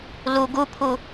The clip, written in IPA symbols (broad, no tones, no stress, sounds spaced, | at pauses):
l u ɡ u pʰ u